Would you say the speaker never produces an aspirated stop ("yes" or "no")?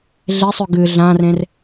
yes